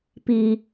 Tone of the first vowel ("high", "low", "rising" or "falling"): low